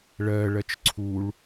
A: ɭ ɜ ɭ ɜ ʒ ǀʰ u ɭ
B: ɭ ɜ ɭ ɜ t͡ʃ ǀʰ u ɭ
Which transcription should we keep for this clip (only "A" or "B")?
B